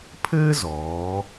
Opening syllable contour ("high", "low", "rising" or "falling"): high